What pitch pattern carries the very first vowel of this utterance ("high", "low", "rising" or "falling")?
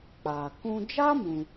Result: low